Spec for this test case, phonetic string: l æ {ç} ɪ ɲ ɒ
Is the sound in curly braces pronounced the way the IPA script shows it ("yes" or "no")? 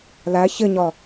yes